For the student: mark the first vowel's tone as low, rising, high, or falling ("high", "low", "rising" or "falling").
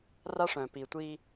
high